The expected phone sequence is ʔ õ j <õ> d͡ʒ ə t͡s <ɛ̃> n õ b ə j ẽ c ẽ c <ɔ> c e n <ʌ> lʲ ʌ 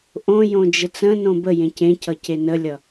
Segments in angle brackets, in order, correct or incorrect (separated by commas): correct, incorrect, incorrect, incorrect